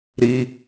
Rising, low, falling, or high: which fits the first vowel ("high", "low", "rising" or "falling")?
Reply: high